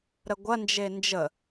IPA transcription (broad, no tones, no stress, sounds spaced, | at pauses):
ɾ ə ɡʷ ɐ n d͡ʒ e n d͡ʒ ə